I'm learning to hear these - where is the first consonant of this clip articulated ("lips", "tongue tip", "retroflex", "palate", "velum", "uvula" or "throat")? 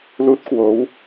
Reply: tongue tip